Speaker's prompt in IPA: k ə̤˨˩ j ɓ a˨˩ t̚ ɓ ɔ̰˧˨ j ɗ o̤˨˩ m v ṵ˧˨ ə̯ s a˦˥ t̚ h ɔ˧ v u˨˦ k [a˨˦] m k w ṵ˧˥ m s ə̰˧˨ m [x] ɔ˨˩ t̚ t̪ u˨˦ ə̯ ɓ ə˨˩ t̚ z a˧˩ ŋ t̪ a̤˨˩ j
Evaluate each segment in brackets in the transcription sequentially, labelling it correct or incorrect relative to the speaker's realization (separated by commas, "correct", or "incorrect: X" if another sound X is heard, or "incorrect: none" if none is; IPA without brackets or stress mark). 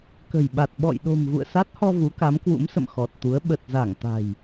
correct, correct